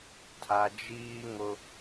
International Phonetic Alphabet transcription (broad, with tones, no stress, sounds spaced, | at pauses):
tʰ a˨ d͡ʒ iː˦ ŋ ʊ˦